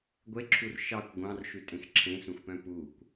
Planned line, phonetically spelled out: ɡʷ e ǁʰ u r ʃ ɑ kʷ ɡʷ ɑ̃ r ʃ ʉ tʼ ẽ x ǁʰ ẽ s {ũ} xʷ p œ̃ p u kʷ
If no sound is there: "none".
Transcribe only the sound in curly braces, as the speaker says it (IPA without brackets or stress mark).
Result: ũ